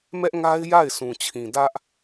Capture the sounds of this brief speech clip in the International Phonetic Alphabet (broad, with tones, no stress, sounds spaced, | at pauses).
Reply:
m ɛ˦ ʔ ŋ a˦ ɪ̯ j a˦˨ ɪ̯ sʰ ũ˨ t͡ɕʰ ĩ˨ d ä˦ ʔ